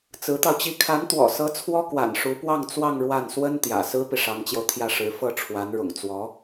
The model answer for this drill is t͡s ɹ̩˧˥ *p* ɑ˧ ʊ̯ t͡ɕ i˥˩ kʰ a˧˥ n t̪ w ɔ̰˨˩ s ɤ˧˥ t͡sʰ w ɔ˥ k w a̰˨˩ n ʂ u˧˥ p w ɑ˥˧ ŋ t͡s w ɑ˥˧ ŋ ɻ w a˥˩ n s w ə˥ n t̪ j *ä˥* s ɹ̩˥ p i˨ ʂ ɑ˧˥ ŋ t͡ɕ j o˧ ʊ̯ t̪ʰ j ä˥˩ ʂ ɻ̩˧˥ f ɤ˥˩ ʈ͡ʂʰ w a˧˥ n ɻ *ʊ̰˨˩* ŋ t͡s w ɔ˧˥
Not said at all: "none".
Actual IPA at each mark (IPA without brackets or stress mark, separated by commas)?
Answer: t̪, ä̰˨˩, ʊ̰˨˩